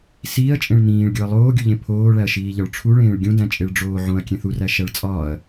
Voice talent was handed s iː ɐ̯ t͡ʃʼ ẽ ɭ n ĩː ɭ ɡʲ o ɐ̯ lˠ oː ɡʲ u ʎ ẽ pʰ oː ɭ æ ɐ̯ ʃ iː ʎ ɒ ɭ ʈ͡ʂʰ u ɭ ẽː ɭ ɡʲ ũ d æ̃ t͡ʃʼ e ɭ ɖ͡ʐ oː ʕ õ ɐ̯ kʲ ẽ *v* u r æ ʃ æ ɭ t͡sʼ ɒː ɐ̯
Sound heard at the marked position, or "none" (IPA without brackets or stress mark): θ